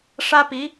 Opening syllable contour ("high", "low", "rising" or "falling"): high